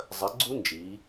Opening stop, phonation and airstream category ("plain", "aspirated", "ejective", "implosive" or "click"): click